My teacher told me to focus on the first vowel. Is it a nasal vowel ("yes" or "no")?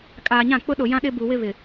no